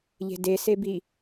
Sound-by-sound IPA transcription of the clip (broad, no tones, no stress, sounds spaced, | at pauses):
ʎ e̤ d e s e b i